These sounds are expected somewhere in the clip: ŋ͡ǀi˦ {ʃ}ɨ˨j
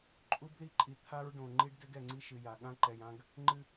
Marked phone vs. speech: correct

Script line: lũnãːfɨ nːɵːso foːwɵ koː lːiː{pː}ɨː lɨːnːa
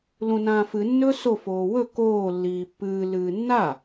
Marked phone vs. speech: correct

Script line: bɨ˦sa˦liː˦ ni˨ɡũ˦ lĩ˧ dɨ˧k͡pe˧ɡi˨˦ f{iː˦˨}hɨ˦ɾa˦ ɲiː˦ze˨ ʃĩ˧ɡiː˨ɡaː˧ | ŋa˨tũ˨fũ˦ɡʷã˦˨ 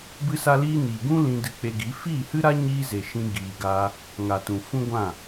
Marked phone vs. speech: correct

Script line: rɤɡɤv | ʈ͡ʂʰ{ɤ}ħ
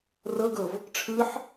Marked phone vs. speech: incorrect: ɯ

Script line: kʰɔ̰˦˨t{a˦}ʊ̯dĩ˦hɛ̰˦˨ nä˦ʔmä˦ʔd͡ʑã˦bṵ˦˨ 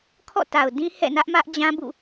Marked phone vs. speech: incorrect: a˨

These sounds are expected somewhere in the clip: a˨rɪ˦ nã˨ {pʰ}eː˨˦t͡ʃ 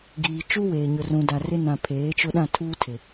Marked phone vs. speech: correct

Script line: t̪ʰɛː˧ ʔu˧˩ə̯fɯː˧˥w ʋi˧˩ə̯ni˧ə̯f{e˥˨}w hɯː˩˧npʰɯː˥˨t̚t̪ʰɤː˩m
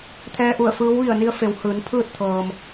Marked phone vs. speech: incorrect: e˩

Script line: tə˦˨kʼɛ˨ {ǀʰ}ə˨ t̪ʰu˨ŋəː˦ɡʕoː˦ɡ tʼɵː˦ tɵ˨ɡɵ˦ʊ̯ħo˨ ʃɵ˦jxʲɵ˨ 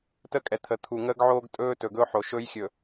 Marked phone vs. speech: incorrect: t̪ʰ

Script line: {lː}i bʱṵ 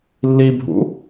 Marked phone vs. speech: correct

